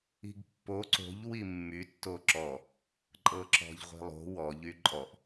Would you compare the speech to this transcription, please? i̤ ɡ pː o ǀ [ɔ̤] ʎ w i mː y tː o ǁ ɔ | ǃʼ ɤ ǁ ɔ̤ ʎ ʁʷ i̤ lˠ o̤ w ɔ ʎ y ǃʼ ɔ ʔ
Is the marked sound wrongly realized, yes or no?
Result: yes